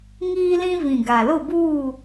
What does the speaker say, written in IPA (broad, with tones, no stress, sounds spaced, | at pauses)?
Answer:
ŋ iː˦ l ĩ˦ v ĩ˨ ɡ a˨ l ʊ˦˨ b uː˦˨